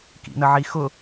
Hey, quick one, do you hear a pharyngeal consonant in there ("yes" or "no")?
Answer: yes